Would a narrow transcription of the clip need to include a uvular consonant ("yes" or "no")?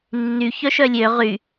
yes